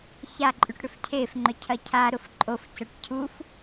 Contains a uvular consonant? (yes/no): no